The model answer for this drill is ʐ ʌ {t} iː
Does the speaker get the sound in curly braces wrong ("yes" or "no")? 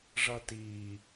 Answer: no